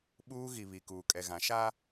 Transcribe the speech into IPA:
ɓ uː˦ ɣ i˨ β i˨ k uː˨ kʼ ɛ˨ ɣ ã˨˦ ʃ a˦

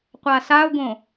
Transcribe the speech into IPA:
qʷ a s a ʊ̯ ɡ õ

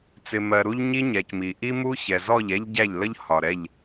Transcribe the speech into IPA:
t͡s ɪ˨ m ɜ˨ ɾ u˦ ʎ ɲ i˦ ɲ ɛ˨ c m i˨ ʔ i˦ m u˦ ç ɛ˨ z ɔ˦˨ ʎ ɛ˦ ʎ ɟ æ˦˨ ʎ l ə˦ ʎ h ɒ˨ ɾ ɛ˦˨ ʎ

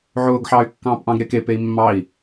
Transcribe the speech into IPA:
ʕ ʊː ɡ ħ ɑː y̯ kː ɑ̃ː p ʔ ɑ̃ ɡ ɾ e k e p e i̯ mː ɑ i̯

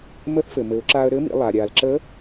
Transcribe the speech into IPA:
m ə˧˥ θ f ɘ˩ m ɘ˩˧ ʊ̯ ǁ aː˧ ə̯ ɾ ɘː˧˥ m ḭ˩˧ lˠ a˩ ɾʲ aː˩ l ǁ ə˧˥

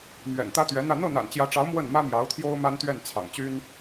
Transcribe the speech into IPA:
m ɥ ɛ̰˨˩ n t̪ ä˥ t̪ ɥ ɛ˧˥ n̪ ä˥˧ n̪ ɤ˥˩ n̪ a̰˨˩ n t͡ɕ j ä˧˥ ʈ͡ʂ ɑ˧˥ ʊ̯ m w ə˥˩ n m ä˥ m j ɑ˧˥ ʊ̯ t̪ʰ j o˥ ʊ̯ m a˥ n t̪ ɥ ɛ˥˩ n t͡sʰ ɑ̰˨˩ ŋ t͡ɕ y˥ n

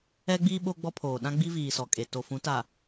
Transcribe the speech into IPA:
ɛ˦ ɡ͡b iː˦ ɓ o˦ ɡ͡b ɔ˦ pʰ oː˨ ɗ ã˦ ɡ͡b i˦ v iː˨ s ɔ˨ kʼ e˨ t o˨ f ũ˨˦ t a˨

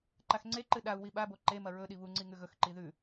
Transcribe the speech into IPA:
ǃ a x ŋ͡ǀ e ǃ ɨ ɗ a u̯ w i ɓ a b o ǃ e m ɐ ɹ ɵ ɗ i β u ŋ͡ǀ i ŋ ʉ ɣ ɵ x ǃ i ð ʉ

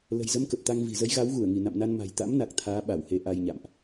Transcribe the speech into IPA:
l ə̤˨˩ j z ə˧ m k ə˨˩ p̚ t̪ a˧ ŋ v i̤˨˩ z ə˨˦ j ɣ a˨˦ w ɣ u˧˩ ə̯ ŋ i˧˩ n a̰˧˨ m n a˧ n m a̤˨˩ j t̪ a̰˧˥ m n a˨˩ k̚ t̪ʰ aː˨˦ ɓ a˧˩ w h e˨˦ ʔ a˧ j ɲ a̰˧˨ m ʔ

